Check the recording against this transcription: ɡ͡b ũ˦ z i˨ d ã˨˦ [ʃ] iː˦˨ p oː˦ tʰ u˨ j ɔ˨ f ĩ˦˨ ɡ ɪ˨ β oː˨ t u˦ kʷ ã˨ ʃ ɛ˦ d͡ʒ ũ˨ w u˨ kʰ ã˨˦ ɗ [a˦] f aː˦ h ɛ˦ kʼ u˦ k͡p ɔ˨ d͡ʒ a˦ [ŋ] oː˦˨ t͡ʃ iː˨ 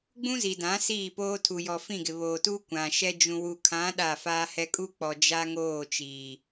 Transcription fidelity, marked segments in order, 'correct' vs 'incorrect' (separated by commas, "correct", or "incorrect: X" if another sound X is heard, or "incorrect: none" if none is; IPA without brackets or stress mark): incorrect: s, incorrect: a˦˨, correct